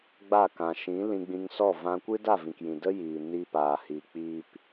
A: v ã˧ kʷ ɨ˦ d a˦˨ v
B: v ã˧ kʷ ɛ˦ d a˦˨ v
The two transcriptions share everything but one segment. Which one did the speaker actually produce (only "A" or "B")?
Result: A